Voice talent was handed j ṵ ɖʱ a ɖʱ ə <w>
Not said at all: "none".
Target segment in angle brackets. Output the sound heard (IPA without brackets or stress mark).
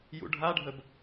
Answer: b